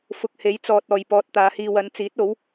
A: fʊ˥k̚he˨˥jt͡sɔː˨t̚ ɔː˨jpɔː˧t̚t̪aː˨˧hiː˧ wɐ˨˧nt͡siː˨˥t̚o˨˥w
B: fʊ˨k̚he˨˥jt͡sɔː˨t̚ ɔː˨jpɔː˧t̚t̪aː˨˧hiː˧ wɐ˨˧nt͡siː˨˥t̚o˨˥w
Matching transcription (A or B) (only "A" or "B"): B